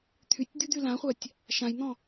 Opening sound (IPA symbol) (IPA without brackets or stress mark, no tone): t̪ʰ